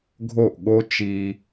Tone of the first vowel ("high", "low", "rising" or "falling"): falling